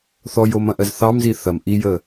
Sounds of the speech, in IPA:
θɔjomɐ̃ʔɜz θɑmzi θɐm ʔijə

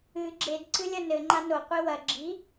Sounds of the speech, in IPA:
ɨ ɡ͡ǁed ǀɨlʲɐnɘ ŋ͡ǃano qʷiwɐ ɡ͡ǁi

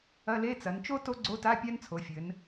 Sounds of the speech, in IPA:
ɐ˧˥˧le˧˥˧ t͡sɐ˩˧nt͡ʃo˦˥ to˦˥ɡ͡ǀo˧˥˧ta˧˥˧ pʲa˦˥nt͡sʰo˩˧fʲɘ˩˧n

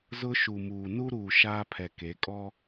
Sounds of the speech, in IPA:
zʊ˦ʃu˨muː˨ nu˦ɾuː˨ ʃaː˦pʰɛ˨ke˨˦ kʼɔ˦

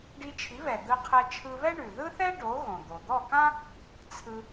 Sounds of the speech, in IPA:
ɖi˧t͡ʃʰi˩˥βɛ˩ d̪ɯ˧qʰɛ˧t͡ʃʰɯ˧βɛ˥ ɳʉ˩ ðɯ˥θɛ˥ɖo˩˥ ɣõ˩d̪o˩ d̪ɔ˥˩kã˥ | t͡sʰɯ˧

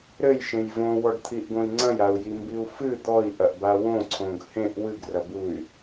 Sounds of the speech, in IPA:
ɾɘjʃẽj võwɔɖt̪ʰiʔɡõi̯ ŋ͡ǀɐ̃jau̯jimbiu̯ fɨ d̪ɔi̯ʔɐʔba wõǀʰõɡ hẽʔ wɨɡrɐbuy̯

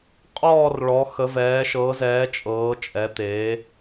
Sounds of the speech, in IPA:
qʼɔː˥˧rɭɔ˨˦ xə˨˦vɛː˨˦ʃɤ˨˦zɛː˨˦ t͡ʃʼɤː˨˦t͡ʃʼɛ˨˦t̪eː˨˦

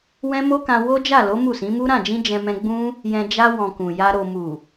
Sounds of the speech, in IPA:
wɛ̃˦mo˦kã˧ wo˦d͡ʒa˦˨lo˨˦ mu˦˨sĩ˨˦mu˦ ɾã˦˨d͡ʒĩ˧ d͡ʒɛ̃˧mɛ̃˧ɡ͡bũ˦ | jɛ̃˧ d͡ʒa˧ wɔ̃˨ kũ˨ja˧ ɾo˨ mu˨

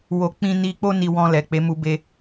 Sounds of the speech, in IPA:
wo˧k͡pĩ˧ni˧ k͡po˧ni˨ wɔ̃˧lɛ˨k͡pe˨˦ mu˧be˧

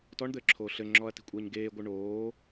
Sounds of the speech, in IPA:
tɔɳd̪ɘːǁʰoː ɬɘŋ͡ǁɔɐ̯ti̤kʷʼeːɲ ɡeːɡʷɨ ɳoː

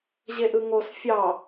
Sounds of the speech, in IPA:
ʑeʔɯŋos fʲɑ

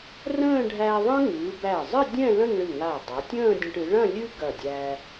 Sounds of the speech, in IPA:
rə̃ː˥˧ɖʱæ˧ðˤə̃˥ ŋɨː˩˧ bæ˧˩zˤɨ˥˧dʲɛ̃˥˧ lə̃˥˧ŋɭɨ˧˩ŋa˧˩ dˤa˩˧tʲə̃ː˥˧dʲɐ̃˧ʈ ɨ˩˧ɭɐ̃˥˧ lʲɨ˥ ɡɐ˧˩dʲæː˧

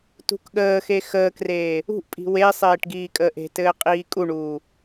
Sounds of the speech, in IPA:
tṳkɠəːxe xəːkreː | ṳʔpʼi̤ wesˤeːʈ ɡiːkʼəːʔe̤tɘː qʼiːkʼuɳuː

